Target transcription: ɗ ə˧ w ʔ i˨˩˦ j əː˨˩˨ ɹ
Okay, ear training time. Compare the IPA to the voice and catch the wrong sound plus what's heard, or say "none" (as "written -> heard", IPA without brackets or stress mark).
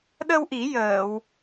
ɹ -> w